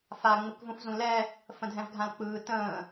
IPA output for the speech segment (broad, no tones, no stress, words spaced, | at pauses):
fa ŋ͡mɯkvũfzũlɛ | fə̃dʱɛ̃vɡʱãlk͡pɯː tə̃ː